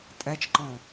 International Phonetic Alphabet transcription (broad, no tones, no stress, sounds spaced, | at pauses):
tʼ ɛ t͡ʃ ǃ ɔ̃